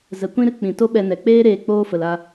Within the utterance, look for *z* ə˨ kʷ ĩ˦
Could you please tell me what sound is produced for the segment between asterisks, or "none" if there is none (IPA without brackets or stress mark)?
z